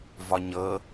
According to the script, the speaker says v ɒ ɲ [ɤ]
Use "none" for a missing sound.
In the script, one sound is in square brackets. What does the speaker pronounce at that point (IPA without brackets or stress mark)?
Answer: ɤ